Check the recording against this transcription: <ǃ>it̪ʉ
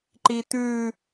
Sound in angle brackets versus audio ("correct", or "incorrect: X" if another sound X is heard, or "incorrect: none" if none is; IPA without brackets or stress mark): correct